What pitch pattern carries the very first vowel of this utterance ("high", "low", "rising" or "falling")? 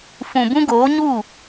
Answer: low